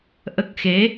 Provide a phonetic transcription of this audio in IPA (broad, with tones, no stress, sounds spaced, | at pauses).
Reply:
ʔ ə˦˥ k̚ x e˧˥